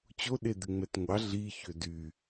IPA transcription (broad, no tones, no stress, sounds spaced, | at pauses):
t͡ɕ o ɗ e d̪ ɪ ŋ͡m ɛ t ŋʷ ɑ ɮ i ç ø d y